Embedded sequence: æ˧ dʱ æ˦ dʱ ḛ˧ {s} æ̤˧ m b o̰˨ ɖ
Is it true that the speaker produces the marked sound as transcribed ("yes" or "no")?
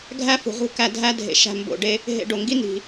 no